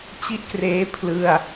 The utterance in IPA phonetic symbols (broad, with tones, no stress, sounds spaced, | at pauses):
t͡ɕ i˥˩ ʔ k r eː˦˥ pʰ l ɯ˥˩ a̯